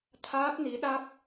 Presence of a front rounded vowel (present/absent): absent